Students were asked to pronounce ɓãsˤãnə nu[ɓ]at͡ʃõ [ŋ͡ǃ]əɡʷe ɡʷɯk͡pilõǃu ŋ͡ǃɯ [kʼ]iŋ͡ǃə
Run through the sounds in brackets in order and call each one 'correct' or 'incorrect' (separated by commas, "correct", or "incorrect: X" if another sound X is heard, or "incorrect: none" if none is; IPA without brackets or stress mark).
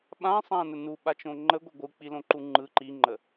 correct, correct, incorrect: ǃ